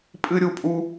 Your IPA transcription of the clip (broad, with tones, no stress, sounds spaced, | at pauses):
pʼ ɨ˥ ɾʲ u˥ pʼ u˥